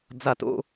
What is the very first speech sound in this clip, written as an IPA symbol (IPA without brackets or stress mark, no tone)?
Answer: d͡z